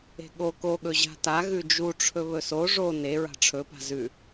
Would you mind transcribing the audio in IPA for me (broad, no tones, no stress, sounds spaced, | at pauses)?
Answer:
e̤ ɠ o k o ɠ ɵ ʑ a̤ t a ɣ ʉ d͡ʒ u ʈ͡ʂʰ ɵ β ɵ s o ʐ o n e ɹ a̤ ʈ͡ʂʰ ɵ p a̤ z ʉ